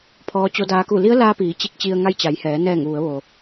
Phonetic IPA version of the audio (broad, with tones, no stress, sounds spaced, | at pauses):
pʰ ɔː˧˥ t͡ɕ o˧˥ d aː˧˥ k u˥˨ l i˧˥ ə̯ l aː˧ p iː˩˧ t͡ɕ i˧ k̚ t͡ɕ i˧ ə̯ ŋ a˧ j t͡ɕ a˩˧ j h ɛː˩˧ n ɛː˧˩ ŋ ʋ u˩˧ ə̯ ʋ o˩